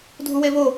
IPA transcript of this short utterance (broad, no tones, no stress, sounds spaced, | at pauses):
dʱ u w e β o